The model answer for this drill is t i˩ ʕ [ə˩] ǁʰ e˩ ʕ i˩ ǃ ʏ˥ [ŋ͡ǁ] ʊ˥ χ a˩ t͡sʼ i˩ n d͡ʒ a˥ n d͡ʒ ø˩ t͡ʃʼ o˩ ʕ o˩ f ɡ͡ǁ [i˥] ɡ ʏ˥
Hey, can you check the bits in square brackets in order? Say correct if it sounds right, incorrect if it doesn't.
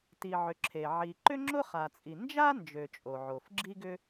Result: incorrect: ʏ˩, correct, correct

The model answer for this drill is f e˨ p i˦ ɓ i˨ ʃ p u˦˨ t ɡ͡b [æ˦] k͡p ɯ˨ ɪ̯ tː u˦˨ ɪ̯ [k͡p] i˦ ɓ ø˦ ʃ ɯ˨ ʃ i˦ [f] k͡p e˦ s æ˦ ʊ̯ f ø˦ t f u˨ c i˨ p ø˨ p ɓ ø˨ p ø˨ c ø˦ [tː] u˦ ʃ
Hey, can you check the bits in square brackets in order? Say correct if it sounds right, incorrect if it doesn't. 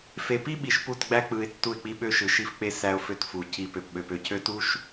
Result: correct, correct, correct, incorrect: t

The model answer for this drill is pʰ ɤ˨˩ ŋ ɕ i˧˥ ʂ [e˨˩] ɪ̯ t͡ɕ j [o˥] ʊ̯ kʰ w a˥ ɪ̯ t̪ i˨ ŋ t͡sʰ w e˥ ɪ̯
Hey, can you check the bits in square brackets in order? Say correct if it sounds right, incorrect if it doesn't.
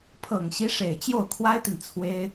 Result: correct, incorrect: o˥˩

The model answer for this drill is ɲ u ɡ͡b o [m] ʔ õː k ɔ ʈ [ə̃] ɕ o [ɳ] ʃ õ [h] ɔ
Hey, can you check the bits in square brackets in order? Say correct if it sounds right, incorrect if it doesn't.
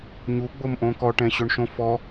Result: correct, incorrect: ɛ̃, correct, incorrect: f

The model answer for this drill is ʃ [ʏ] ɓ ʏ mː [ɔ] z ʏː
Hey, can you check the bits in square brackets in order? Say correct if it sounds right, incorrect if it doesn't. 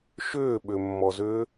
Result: incorrect: ʏː, correct

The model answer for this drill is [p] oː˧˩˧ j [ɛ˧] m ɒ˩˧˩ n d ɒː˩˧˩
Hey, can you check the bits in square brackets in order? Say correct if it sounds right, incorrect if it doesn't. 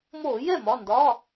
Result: incorrect: m, incorrect: ɛ˥˩

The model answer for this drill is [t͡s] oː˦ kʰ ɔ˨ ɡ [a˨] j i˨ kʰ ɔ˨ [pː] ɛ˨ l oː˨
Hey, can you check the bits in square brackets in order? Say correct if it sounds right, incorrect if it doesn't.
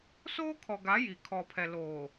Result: incorrect: s, incorrect: a˨˦, incorrect: pʰ

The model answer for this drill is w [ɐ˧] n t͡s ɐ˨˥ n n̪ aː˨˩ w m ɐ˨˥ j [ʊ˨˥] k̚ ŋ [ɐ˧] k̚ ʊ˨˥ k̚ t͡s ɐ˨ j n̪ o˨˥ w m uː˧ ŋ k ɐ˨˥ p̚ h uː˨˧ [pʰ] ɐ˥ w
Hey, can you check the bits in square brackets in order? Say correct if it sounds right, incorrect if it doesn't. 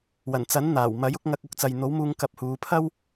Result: incorrect: ɐ˨˩, correct, correct, correct

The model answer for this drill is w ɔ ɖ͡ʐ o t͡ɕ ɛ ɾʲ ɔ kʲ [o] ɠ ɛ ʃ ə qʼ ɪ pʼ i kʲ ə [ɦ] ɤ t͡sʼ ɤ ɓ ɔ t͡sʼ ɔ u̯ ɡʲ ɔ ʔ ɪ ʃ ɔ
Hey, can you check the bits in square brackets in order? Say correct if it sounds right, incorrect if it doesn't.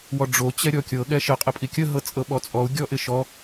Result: incorrect: ɤ, correct

